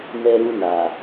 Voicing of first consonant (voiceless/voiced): voiced